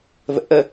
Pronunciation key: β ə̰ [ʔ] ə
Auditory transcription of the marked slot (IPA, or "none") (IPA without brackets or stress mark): ʔ